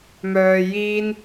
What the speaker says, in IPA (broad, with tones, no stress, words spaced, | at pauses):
mœː˨jiː˧n